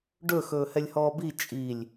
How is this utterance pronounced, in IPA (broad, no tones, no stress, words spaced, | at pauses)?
ɖɵxɵː hɛlʲhɔːbi t͡ʃʼilʲ